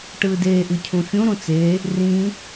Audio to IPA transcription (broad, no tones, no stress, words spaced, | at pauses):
ʈɯːdeːʔ ɯcʰũfʲũ ɾũt͡se | rĩ